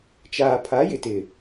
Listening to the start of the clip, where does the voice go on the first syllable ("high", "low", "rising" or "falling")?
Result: low